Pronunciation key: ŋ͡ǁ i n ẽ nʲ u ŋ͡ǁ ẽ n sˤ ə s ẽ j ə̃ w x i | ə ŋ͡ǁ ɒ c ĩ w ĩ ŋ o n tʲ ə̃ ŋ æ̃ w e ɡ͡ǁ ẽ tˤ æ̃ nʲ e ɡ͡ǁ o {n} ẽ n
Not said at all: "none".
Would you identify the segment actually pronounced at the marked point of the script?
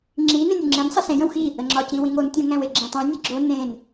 n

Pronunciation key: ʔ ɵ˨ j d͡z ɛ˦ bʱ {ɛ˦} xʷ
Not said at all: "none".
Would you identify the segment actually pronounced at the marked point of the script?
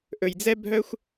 œ˦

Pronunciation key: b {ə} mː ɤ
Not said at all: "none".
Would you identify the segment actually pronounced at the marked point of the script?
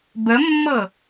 ə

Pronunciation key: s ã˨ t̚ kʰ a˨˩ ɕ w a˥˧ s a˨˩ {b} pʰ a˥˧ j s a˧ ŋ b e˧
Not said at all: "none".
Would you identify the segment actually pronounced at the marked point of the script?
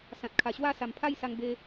m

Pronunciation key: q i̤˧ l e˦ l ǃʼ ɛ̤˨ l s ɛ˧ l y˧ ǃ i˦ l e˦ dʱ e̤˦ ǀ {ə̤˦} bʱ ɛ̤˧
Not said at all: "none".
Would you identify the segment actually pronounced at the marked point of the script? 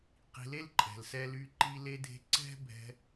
ɛ̤˦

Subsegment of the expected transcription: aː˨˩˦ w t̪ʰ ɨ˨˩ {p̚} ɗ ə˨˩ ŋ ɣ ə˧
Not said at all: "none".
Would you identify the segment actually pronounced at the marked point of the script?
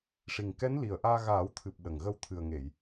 p̚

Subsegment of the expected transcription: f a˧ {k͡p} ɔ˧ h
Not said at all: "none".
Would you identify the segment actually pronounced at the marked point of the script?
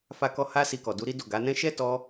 k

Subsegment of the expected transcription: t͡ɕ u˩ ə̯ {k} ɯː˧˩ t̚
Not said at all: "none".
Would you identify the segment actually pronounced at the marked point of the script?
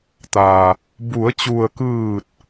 k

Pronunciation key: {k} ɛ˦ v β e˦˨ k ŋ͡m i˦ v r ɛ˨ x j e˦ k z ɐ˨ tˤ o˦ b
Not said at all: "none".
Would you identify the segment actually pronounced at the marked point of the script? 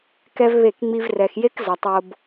k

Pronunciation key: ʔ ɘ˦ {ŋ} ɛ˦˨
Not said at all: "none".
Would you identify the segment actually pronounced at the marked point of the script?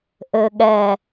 ɠ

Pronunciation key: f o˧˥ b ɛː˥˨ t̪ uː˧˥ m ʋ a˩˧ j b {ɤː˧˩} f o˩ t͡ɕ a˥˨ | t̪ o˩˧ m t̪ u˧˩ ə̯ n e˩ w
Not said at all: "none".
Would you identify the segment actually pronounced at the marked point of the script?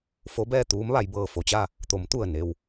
ɤː˧˩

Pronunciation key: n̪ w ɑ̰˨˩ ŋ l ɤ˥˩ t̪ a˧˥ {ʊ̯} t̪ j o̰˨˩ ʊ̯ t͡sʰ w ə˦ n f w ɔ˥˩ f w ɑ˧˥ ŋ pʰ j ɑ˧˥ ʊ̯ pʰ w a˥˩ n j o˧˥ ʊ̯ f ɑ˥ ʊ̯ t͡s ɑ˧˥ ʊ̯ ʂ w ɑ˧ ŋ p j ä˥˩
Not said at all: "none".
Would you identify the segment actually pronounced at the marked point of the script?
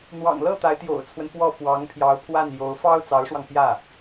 ɪ̯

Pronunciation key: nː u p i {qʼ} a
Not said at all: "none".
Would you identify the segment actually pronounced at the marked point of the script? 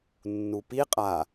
qʼ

